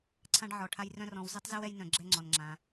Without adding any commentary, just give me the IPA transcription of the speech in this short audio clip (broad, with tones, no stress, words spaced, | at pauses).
ǀʰã˧ɖʕɔ˨ʈʰa˧j rœ̃˦rɔ̃˧w zɯ˦tˤzɯ˦wɛ˦jnœ̃˧ ɡ͡ǁɛ˦ŋ͡ǀɔ˧nŋ͡ǁã˧